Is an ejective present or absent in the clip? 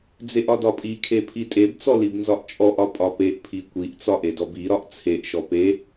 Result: present